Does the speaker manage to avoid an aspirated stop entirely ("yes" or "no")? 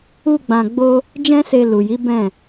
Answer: yes